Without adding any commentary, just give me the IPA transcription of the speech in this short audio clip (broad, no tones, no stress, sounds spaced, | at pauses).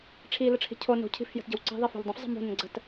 ʈ͡ʂʰ i l ə ʈ͡ʂʰ i̤ cʰ o n o̤ cʰ i̤ f j ə̤ t ɟ ə̤ w ǀ i̤ ðˤ i f o̤ ʎ dˤ ə̃ f zˤ ə̤ m o̤ n ə̃ ɡ͡ǀ ə t